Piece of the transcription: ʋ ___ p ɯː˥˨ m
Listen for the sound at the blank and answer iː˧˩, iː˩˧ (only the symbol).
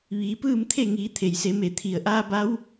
iː˩˧